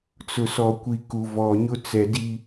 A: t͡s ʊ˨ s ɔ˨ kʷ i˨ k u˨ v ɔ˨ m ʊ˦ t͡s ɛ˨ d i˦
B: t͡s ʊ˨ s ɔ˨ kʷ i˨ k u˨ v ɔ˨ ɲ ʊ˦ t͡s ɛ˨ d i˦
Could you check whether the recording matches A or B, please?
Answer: B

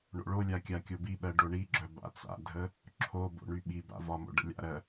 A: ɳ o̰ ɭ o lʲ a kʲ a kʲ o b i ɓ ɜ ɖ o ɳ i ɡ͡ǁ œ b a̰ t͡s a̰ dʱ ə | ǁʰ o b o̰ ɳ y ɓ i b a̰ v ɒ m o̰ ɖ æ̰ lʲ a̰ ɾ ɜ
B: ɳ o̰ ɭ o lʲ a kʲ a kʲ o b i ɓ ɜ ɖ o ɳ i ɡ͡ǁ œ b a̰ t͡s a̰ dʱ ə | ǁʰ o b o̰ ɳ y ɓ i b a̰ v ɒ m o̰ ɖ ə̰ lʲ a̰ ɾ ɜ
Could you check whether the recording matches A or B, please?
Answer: B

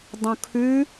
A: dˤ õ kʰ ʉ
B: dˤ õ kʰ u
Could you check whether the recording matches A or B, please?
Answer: A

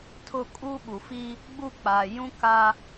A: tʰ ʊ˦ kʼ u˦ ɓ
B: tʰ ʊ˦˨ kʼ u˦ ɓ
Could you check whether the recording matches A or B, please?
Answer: B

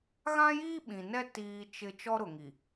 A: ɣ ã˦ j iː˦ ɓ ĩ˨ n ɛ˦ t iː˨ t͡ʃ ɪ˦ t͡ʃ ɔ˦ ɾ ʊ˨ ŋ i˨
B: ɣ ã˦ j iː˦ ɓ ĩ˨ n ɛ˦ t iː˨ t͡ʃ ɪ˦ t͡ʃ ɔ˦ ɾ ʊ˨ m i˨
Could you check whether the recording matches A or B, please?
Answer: A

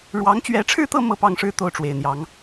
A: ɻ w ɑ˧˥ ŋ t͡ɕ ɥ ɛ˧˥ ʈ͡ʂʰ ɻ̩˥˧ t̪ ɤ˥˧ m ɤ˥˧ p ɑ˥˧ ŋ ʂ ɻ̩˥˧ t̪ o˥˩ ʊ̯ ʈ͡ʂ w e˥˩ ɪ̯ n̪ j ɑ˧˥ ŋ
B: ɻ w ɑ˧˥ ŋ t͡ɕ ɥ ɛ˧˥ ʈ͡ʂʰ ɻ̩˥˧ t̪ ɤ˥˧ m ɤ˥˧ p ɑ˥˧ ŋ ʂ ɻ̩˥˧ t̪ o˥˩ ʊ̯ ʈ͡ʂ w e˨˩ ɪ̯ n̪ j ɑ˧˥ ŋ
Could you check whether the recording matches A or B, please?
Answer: B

